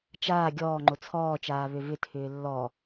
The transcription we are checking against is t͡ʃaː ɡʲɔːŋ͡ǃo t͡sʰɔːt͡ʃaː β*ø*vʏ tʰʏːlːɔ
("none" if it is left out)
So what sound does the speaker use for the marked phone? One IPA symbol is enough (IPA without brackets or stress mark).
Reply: ø